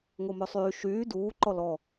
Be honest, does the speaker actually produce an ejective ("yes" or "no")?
no